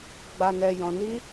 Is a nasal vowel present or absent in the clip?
present